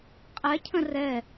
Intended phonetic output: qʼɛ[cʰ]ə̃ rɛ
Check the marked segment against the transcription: correct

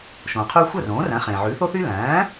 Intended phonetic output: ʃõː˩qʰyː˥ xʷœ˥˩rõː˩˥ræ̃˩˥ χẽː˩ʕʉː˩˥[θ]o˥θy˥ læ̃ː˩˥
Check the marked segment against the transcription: correct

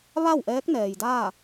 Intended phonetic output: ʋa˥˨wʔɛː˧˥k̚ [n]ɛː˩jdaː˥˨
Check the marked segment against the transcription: correct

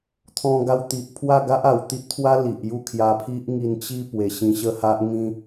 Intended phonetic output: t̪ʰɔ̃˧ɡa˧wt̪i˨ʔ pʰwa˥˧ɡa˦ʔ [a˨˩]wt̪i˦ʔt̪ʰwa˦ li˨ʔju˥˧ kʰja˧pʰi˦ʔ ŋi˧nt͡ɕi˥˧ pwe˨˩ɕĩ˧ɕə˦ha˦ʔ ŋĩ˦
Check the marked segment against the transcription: correct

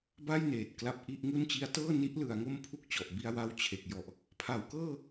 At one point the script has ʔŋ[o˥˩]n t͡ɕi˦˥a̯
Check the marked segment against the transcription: incorrect: u˥˩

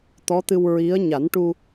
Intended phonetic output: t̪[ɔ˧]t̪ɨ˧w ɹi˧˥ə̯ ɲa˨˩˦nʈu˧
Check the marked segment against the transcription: incorrect: ɔ˧˥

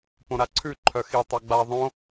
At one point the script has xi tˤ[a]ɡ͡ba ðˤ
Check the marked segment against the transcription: correct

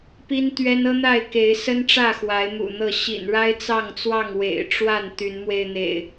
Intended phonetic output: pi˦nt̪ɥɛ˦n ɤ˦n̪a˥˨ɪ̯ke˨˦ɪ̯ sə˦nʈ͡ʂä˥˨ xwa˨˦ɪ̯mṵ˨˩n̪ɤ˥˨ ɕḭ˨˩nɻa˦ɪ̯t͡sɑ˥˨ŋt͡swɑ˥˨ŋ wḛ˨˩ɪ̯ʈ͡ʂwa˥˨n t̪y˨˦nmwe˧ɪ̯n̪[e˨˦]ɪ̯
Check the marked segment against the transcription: incorrect: ḛ˨˩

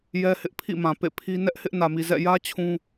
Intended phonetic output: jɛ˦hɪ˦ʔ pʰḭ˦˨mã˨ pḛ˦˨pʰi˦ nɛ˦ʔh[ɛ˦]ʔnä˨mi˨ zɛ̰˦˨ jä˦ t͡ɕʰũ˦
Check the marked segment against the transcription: incorrect: ɪ˦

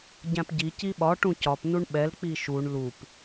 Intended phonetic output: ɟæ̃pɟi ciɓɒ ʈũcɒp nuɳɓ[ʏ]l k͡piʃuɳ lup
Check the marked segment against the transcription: incorrect: ɛ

